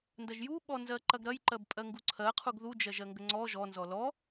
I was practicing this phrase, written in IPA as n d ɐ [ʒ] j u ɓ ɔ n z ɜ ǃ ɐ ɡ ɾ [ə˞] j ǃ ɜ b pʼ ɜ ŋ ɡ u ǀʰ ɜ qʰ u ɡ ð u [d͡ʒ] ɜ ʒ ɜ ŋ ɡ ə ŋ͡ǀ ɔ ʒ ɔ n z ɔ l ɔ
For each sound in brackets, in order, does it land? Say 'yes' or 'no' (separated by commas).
yes, no, yes